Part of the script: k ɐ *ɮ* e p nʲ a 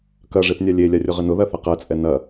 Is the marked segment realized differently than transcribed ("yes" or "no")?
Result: yes